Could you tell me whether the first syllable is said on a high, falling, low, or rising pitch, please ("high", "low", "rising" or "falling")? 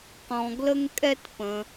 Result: low